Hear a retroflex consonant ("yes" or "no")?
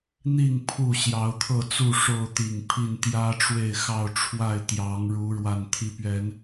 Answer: yes